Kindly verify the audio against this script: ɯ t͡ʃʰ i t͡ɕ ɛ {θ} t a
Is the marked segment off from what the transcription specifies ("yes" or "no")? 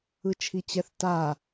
no